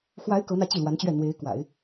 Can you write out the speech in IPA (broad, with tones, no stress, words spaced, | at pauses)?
xwa˧˥ɪ̯ kɤ˧˥n̪ä˧ t͡ɕi˥˩lwa˧˥nt͡ɕɥɛ˥˩ n̪we˧˥ɪ̯kwa̰˨˩˦ɪ̯